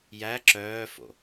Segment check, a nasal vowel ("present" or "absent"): absent